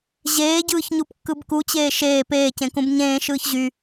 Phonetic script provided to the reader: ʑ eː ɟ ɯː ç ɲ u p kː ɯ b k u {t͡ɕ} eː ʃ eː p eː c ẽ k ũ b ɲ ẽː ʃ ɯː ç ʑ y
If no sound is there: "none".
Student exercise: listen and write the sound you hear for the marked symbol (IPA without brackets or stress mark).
t͡ɕ